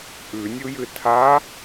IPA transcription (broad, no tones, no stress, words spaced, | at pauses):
ʔʉnʲujɨ tʰa